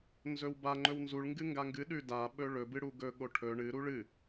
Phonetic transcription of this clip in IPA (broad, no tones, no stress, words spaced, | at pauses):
nzɵwba ŋ͡ǃɵwnzuɭ ŋɡɨŋɡaŋɡɨ ɗʉda ɓɵɭɵ bɨɽuɡɵ ɠoʈʰɵ ɳɨ ɾuɭɨ